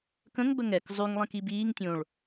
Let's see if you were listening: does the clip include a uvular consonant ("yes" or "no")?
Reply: no